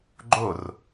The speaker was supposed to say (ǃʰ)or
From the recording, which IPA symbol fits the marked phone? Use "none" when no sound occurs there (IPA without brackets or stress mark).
ɡ͡ǃ